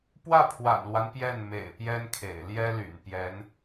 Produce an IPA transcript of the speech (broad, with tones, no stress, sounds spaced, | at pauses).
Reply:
p w ä˥˩ pʰ w a̰˨˩ n l w a˦ n p j ɛ˥˩ n m ḛ˨˩ ɪ̯ p j ɛ˥ n kʰ ḛ˨˩ ɪ̯ l j ɛ˥ l y̰˨˩ n p j ɛ˧˥ n